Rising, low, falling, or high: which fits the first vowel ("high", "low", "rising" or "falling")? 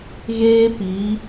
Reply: high